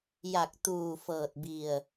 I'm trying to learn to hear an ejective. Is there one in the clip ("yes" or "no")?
no